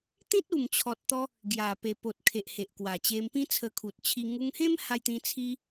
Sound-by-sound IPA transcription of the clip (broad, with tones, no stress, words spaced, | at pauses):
t̪ĩ˦t̚u˨˩mt͡ɕʰɔ˨t̚t̪ɔ˧ | ɡja˨˩pe˨˩ po˨t̚kʰe˨ʔ he˨ʔkwa˨˩t͡ɕe˧mpĩ˦ t͡sʰə˧kʰu˨t̚t͡ɕʰi˧ ŋu˧ŋhẽ˦m ha˧jt̪ĩ˧ t͡sʰi˧